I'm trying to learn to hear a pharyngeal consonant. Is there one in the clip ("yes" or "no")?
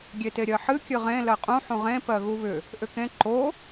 yes